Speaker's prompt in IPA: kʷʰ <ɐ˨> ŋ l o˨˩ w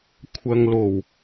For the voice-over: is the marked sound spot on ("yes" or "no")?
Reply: yes